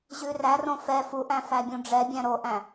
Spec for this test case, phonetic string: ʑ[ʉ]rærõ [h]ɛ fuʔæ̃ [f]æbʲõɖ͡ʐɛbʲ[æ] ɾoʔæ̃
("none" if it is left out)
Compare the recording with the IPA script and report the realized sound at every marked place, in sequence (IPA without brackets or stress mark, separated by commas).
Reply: ʉ, f, f, æ̃